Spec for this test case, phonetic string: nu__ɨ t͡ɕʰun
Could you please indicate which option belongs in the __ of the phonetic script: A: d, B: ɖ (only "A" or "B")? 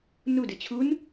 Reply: A